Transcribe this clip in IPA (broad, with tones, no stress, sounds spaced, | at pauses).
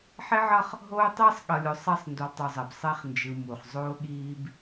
ħ e˦ ʕ ʌ˦ χ | ɦ oː˦ tˤ iː˦ sˤ ɠ ʌ˨ lʲ o˨ sˤ a˦˨ sˤ n d u˨ lˠ tˤ u˨ zˤ ɛ˨ b sˤ ɛ˦ χ n d͡ʒ ɯ˨ m u˨ χ zˤ oː˦ ɠ iː˦ b